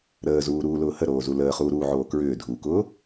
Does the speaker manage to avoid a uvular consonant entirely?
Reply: no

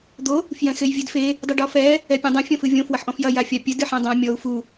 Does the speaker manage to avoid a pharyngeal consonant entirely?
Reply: no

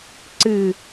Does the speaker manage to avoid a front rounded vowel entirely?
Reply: yes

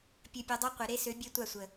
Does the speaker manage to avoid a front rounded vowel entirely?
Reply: no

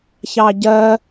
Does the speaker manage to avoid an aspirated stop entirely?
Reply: yes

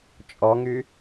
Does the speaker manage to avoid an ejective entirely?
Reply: no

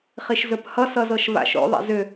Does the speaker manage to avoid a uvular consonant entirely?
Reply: no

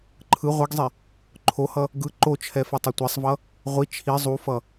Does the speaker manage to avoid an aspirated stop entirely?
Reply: no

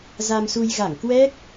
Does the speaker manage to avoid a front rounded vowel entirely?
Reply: yes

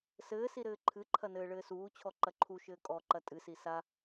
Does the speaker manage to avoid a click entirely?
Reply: no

